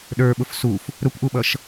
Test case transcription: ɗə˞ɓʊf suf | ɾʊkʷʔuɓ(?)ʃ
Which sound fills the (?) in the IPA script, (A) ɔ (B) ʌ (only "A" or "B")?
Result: B